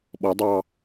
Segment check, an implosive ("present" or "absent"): present